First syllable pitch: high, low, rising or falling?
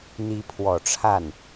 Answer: rising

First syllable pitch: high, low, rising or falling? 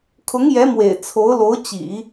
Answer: rising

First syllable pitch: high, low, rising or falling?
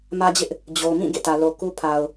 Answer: high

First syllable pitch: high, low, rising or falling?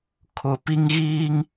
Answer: low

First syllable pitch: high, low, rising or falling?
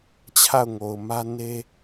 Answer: falling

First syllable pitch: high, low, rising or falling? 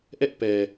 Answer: high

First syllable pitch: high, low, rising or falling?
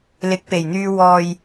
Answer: rising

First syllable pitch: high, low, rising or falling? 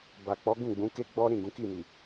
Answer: low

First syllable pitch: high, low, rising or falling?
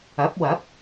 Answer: rising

